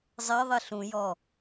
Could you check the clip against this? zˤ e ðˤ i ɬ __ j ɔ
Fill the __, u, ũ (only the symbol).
ũ